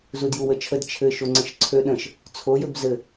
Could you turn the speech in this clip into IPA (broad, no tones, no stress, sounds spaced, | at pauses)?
z u d j u w ə t͡ʃʰ ə d t͡ʃʰ ɘ ʃ o ŋ͡ǀ ə̃ ʃ ǀʰ ø ɗ ə̃ ʃ | t͡sʰ o j ø b z ɘ